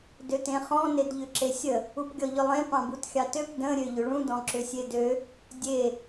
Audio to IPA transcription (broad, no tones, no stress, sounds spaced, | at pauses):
d ø t ẽ χ ɔ̃ n e d ʎ ʏ ǁ e sʲ ə | u p ɡʲ ɔ ʎ ʏ lˠ ẽ p ɑ̃ b u t xʲ ɑ t ø p d ə̃ ɾʲ ø ʎ ʏ ɭ ũ d ɔ̃ ǁ ʏ sʲ e d ø | dʲ e